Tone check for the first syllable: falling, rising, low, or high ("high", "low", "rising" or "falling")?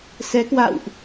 rising